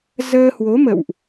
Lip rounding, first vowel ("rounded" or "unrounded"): unrounded